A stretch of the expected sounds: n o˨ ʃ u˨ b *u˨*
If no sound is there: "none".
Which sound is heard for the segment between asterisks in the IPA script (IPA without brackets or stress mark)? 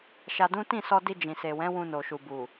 u˨